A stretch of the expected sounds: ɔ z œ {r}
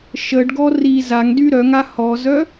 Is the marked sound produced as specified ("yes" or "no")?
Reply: no